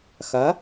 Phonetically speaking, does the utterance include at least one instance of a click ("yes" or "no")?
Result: no